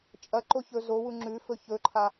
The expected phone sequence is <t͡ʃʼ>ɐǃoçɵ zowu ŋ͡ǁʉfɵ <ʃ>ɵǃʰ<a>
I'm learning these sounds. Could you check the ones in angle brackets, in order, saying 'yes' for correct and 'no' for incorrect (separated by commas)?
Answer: yes, no, yes